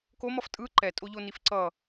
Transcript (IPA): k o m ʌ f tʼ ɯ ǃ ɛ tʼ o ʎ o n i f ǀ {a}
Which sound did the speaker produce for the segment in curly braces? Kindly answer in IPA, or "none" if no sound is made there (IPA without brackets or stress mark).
ʌ